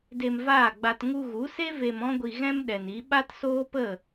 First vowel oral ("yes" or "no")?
yes